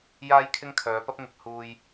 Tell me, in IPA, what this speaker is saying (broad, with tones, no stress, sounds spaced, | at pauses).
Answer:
j aː˥ j kʰ ɪ˥ ŋ kʰ œː˨˧ p ɐ˥ p̚ ŋ ɪ˨ k̚ h uː˧ j